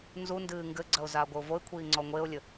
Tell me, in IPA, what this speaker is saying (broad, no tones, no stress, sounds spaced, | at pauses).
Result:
n z u n d ɨː ŋ ɡ ɘ ɡ͡ǀ ɐ ʊ̯ z aː ɡʷ ɘ ʊ̯ v o ɪ̯ kʷʰ iː ŋ͡ǀ ɔ ŋʷ e ʊ̯ lʲ ɘ